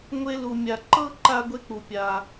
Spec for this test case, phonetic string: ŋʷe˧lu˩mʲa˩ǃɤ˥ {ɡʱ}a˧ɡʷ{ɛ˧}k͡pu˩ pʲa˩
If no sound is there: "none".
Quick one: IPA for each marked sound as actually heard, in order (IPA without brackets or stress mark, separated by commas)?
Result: ǃ, e˧